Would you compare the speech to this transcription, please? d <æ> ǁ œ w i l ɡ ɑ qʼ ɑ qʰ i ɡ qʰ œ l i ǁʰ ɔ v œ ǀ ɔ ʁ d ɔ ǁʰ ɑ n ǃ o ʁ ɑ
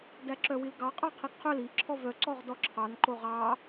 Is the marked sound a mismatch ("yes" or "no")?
no